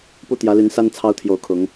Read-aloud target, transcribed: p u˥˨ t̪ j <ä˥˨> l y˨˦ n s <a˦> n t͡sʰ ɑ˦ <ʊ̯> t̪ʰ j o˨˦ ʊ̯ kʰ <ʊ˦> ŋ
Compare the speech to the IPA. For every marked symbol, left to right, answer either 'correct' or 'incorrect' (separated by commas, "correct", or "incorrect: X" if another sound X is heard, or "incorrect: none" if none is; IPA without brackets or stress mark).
incorrect: ä˨˦, correct, correct, incorrect: ʊ˨˦